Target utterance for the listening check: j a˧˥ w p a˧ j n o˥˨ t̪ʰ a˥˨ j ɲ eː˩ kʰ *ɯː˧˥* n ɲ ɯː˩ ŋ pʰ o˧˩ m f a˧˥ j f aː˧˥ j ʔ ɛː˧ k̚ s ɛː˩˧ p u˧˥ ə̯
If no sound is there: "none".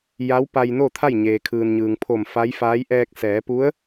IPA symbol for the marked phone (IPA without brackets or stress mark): ɯː˩